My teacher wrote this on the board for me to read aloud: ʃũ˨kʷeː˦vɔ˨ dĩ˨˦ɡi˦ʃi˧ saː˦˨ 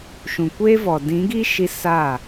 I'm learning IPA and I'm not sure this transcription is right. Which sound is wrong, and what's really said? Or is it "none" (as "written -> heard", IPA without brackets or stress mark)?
none